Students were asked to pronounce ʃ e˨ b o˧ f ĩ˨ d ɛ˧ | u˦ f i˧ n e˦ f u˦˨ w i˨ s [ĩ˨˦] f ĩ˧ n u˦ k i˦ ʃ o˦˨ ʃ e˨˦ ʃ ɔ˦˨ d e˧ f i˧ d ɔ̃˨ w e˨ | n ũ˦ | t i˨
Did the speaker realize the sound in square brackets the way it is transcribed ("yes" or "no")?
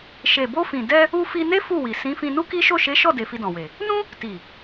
yes